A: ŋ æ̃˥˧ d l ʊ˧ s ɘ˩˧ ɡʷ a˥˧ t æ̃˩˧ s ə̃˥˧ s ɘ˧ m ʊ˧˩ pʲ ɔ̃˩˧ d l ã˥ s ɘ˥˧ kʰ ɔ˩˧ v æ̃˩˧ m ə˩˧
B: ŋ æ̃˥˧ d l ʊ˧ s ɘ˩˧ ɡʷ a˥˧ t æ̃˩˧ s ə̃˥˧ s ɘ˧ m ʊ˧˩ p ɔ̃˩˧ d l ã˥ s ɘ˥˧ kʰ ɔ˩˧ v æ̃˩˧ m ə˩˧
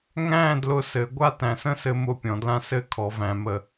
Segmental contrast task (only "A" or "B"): A